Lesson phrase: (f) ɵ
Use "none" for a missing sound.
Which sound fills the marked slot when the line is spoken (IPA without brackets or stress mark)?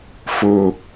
f